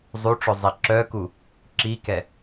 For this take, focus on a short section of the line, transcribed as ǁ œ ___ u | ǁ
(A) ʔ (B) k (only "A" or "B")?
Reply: B